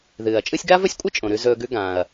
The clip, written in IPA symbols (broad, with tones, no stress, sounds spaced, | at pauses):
ð ɨː˩ ɐ̯ t͡ʃʼ ɨː˦ sʲ ɡ a˥ v ɵ˥ sʲ kʷʼ ɨ˥ t͡ʃʼ õ˩ ɾ ʉ˨ z ɵː˩ ɡ ʉ˨ ɡ ã˩ ɐ̯